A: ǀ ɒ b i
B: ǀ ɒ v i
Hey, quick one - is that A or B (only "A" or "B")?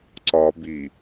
A